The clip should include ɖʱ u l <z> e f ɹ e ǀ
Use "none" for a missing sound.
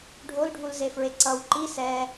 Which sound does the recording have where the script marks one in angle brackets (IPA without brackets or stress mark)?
z